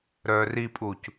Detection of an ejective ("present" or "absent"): present